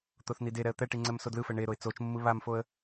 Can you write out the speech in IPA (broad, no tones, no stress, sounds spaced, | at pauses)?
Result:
t̪ o θ n i d e ɾ ɛ ə̯ t̪ ɛ ʈ i ŋ͡ǀ ɛ m s o d l ɯ f ɛ ɳ e ɾ o ɪ̯ t͡s o t͡ʃ mː ɯ β a m f o ə̯